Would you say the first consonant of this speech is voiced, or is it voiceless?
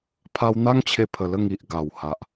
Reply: voiceless